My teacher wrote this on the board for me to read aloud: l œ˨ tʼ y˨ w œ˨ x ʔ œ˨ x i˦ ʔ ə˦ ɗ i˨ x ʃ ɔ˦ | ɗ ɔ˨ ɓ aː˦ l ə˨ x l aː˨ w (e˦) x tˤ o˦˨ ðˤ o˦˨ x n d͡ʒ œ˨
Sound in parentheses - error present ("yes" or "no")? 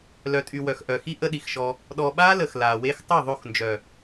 no